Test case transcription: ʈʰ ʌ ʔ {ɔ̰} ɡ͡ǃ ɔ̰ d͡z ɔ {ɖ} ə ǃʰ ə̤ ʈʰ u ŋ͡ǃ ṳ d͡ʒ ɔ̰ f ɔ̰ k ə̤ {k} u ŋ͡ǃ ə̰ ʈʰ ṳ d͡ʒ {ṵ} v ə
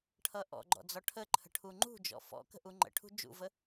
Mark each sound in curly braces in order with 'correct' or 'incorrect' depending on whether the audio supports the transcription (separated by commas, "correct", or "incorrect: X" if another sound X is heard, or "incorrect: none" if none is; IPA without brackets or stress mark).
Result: correct, incorrect: ʈʰ, incorrect: ʔ, correct